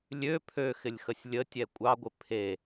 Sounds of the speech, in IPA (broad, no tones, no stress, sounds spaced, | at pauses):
lʲ ø pʰ ø x ɪ lʲ x ə sʲ lʲ ə tʲ ɛ kʷʼ ɑ ɡʷ ɪ pʰ e